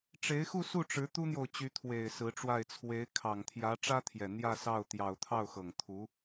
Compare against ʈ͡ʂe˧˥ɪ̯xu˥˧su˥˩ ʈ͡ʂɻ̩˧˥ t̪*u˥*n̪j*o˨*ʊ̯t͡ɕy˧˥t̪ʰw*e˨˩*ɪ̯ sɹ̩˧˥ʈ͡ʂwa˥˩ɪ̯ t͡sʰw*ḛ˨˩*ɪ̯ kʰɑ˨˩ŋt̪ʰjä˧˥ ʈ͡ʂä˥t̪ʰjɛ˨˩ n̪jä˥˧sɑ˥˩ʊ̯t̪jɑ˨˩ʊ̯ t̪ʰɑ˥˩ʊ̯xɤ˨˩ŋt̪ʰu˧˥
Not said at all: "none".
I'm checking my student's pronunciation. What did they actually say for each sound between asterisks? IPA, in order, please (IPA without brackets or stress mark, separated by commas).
u˥, o˨, e˨˩, e˧˥